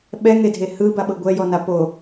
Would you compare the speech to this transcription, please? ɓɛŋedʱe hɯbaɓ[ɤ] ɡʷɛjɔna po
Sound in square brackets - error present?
no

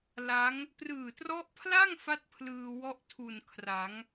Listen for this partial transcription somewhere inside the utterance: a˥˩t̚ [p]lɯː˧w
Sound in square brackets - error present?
yes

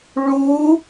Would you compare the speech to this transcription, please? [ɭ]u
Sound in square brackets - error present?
no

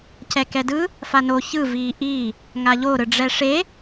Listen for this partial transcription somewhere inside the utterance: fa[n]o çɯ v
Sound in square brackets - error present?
no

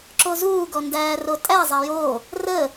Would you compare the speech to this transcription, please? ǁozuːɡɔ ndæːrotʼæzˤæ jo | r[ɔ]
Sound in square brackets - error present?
yes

